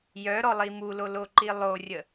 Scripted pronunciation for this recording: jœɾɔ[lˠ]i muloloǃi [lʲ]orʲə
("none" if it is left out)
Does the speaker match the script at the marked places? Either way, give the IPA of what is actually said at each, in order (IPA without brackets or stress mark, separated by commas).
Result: lˠ, lˠ